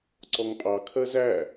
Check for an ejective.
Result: present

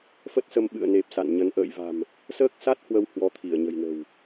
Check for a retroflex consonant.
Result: absent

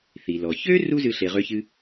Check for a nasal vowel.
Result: absent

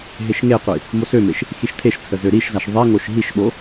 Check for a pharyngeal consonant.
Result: absent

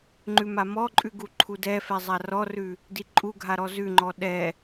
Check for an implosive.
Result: present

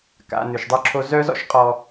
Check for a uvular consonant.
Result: present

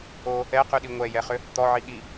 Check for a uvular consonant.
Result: present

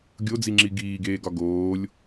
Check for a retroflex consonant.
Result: absent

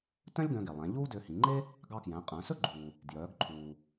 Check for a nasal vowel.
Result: present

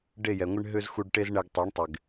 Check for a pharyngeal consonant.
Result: absent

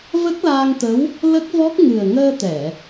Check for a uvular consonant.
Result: absent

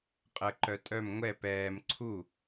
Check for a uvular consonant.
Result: present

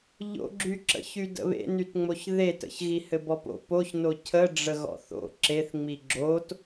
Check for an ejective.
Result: absent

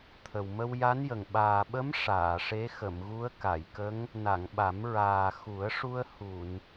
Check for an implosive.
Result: present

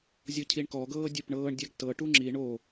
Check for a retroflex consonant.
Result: present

